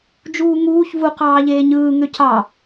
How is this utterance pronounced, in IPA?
d͡ʒ uː ŋ uː ç v u q ɑː ʎ eː ɲ ɯː ŋ ø c ɑ

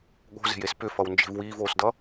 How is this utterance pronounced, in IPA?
ɠ o̤ z e̤ j e s p ʏ f ʌ w n d͡ʒ e̤ v w iː v oː s d ʌ

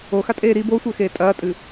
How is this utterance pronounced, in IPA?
o x a tʼ eː ɾ i b o sʷ ɘ x eː tʼ ɐː tʼ ɨ

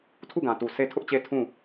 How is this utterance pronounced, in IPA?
tʰ u˦˨ ɡ ã˨ t u˨ sʰ e˦ tʰ ʊ˦ ʔ t͡ɕ e˦ tʰ ũ˦˨

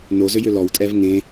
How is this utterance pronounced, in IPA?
n o z ʏ j ʏ l ɔ w tʼ ɛ v ŋ ẽ

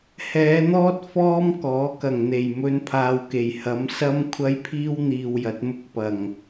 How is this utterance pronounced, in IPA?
h ɛː˨˧ n̪ ɔː˥ t̚ f ɔː˥ m k ɔː˨˥ k ɐ˨˩ ŋ n̪ e˨˩ j m ɵ˧ n pʰ aː˨ w k e˨˩ j h ɐ˨˧ m s ɐ˥ m kʷʰ ɐ˥ j pʰ iː˥ w n̪ iː˨ w j ɐ˨˥ t̚ m ʊ˧ k̚ p ɐ˨˩ ŋ

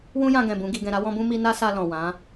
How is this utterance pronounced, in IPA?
w ũ˦ j ã˧ ɡ ɛ̃˨ b ũ˨˦ ɡ i˧ ɡ ɛ̃˧ ɾ a˦ w ɔ̃˦ b ũ˦ m i˦ n a˦ s a˧ l ɔ̃˨ w ã˨˦

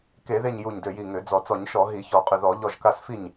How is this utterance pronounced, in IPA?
k e˧˩˧ ð e˧˩ ɲ j u˧˩ ɲ d ø˧˩ j i˧˩ ŋ ø˧˩˧ d͡z ɔ˧˩˧ t͡s ɔ˧˩˧ ɲ ʃ ɔ˧˩˧ ɦ i˧˩˧ ç ɔ˧˩˧ qʼ ʏ˧˩ ð ɔ˧˩˧ ʎ ɔ˧˩ ʒ k a˧˩ s f i˧˩ ɲ

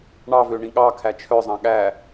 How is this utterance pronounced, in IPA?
ɳ ɑ v ø ɳ ĩ ɠ ɑ kʰ æ t͡ʃʰ œ zˤ ɑ̃ ɠ æ

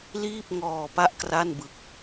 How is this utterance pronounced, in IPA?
l iː˥˩ p̚ ŋ ɔː˧ p a˥˩ ʔ k r a˥˩ n b ɯ˦˥ k̚

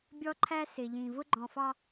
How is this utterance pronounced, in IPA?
bʲ ɔ˦ ǃʰ æ˦ s ɪ˨ ʎ ĩ˨ v ʊ˦ ɡ͡ǃ ɔ̃˨ f ɑ˦

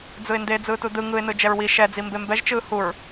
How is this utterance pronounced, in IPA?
d͡z ɯ ɪ̯ n d e d͡z ɯː t u d ɯ ŋ ɯ ɪ̯ n ɯ d͡ʒ ɛ ɹ w i ʃ ɛ d͡z i m b e m b ɛ ʒ t͡ʃ ɯː h u ɹ

